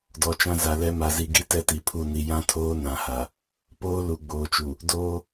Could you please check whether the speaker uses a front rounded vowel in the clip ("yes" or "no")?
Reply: no